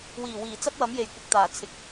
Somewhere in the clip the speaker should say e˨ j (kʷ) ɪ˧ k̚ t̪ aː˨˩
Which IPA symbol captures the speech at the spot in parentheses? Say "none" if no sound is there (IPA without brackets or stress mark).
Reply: kʷ